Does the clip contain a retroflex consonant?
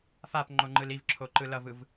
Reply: no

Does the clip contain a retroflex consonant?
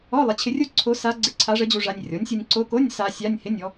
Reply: yes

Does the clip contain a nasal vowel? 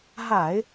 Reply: no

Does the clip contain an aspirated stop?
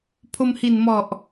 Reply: yes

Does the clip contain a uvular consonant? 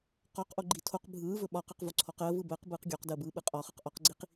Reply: yes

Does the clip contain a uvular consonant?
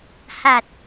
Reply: no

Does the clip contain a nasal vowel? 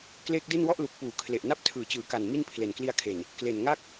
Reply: no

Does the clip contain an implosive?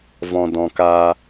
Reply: no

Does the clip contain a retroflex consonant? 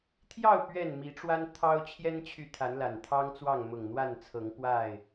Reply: yes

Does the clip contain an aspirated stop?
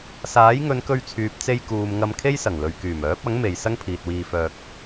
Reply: yes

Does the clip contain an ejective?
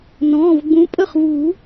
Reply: yes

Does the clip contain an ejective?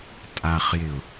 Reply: yes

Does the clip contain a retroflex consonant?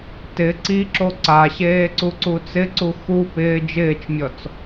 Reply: no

